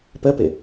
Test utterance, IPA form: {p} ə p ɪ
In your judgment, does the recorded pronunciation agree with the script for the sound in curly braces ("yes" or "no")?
yes